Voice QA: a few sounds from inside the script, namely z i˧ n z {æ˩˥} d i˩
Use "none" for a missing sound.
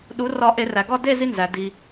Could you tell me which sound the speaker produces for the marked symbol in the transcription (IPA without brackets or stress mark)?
æ˩